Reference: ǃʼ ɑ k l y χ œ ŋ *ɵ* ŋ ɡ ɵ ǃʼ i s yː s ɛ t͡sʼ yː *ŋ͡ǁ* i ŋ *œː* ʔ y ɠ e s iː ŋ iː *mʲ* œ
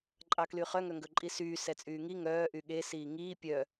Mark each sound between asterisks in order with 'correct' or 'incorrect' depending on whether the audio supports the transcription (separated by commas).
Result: incorrect, incorrect, correct, incorrect